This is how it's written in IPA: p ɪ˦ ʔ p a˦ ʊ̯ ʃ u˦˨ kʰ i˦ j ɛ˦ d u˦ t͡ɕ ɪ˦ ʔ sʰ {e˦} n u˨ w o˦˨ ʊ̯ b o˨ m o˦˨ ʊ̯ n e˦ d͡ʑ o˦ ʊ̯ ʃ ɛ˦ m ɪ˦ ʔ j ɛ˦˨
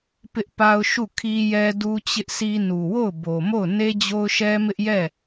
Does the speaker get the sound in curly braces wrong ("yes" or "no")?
yes